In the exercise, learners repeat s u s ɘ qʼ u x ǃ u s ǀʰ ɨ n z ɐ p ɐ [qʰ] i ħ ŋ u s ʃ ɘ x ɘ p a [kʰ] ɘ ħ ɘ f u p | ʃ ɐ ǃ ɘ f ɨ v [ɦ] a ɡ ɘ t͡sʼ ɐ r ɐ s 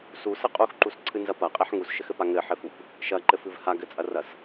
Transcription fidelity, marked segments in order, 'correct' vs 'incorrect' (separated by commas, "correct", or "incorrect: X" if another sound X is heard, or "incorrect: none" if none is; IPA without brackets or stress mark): incorrect: qʼ, incorrect: ŋ, incorrect: h